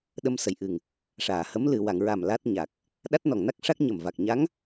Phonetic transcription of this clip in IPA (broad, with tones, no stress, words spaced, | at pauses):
ɗə˧msə˨˩jʔɨ˨˩ŋ | ʂaː˨˩˨hə˧˥m lɨ˨˩˨wa˨˩˨ŋɹa˨˩m la˦˥t̚ɲa˨˩k̚ | ɗa˦˥t̚nɔ˨˩ŋ na˦˥k̚ʂa˦˥k̚ ɲə˨˩m va˨˩k̚ ɲa˧˥ŋ